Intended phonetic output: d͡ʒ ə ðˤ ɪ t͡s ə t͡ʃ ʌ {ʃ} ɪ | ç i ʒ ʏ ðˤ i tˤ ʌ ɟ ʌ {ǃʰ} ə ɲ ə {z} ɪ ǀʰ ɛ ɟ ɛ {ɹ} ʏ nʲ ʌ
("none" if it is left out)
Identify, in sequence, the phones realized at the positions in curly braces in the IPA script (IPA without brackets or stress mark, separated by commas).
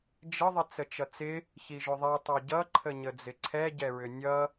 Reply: t͡s, ǃʰ, d͡z, ɹ